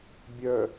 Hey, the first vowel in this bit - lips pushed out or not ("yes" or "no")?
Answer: yes